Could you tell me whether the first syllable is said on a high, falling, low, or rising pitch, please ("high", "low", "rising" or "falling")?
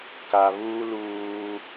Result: low